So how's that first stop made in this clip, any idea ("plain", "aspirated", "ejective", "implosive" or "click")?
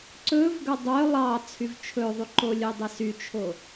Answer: click